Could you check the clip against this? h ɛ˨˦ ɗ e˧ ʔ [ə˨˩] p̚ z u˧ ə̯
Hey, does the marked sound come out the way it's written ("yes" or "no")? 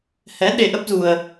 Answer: no